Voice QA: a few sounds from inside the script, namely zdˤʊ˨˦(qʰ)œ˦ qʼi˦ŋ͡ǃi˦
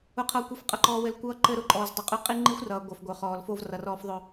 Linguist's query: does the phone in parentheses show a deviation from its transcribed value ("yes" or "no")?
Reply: yes